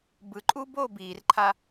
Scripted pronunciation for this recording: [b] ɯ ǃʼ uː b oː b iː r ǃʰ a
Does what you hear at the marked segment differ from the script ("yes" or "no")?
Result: no